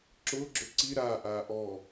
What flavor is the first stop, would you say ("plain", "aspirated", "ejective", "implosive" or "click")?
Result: click